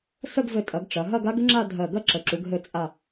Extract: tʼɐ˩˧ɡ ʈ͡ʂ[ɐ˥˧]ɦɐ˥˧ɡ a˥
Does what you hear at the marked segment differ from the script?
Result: yes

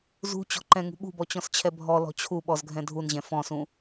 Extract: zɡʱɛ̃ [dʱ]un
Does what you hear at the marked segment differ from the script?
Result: no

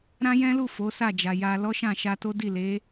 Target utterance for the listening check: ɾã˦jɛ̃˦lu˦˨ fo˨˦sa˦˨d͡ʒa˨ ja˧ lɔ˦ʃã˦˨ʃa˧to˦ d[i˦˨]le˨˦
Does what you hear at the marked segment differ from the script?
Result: no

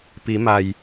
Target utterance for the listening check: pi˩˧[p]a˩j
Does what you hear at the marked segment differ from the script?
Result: yes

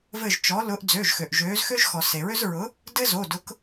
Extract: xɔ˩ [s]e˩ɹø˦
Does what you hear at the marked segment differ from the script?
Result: no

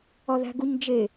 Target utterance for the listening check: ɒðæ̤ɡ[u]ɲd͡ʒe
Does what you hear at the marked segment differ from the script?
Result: no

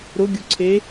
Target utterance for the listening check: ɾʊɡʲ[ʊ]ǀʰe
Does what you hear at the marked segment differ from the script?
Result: no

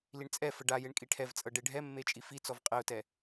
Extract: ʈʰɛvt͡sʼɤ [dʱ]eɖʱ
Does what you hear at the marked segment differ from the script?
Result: yes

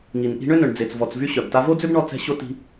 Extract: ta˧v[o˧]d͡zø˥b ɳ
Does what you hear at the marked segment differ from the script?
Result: yes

